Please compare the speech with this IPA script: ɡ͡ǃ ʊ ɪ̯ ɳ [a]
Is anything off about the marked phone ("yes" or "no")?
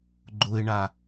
no